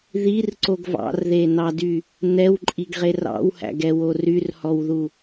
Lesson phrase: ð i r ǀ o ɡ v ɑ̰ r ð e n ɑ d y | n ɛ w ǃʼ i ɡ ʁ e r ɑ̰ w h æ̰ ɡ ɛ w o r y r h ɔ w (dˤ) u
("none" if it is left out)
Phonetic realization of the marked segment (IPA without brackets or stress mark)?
ð